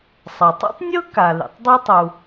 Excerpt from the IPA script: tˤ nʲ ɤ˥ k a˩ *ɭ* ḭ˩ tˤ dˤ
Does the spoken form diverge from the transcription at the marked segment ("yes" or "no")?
yes